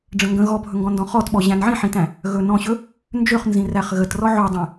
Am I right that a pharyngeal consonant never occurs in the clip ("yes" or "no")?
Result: no